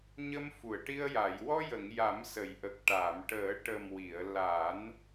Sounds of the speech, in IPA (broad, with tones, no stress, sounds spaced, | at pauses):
ɲ ə˧ m f u˨˩˨ ə̯ ʈ i˧ ə̯ j a˨˩˨ j w ɔ˧ j ə˨˩˨ ŋ j a˨˩˦ m s ə˨˩˨ j ʔ ə˨˩ k̚ ʈ a˨˩˨ m ʈ əː˨˩˦ ʈ ə˨˩ m w i˨˩˨ ə̯ l a˨˩˦ n